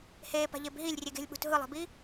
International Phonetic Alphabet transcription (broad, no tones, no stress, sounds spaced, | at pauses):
h eː p a̤ ʎ e b ɦ i lʲ rʲ e ɡ e̤ lʲ ɓ ṳ t ɦ ɯ lˠ e̤ b i